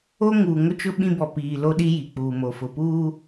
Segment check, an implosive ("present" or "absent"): present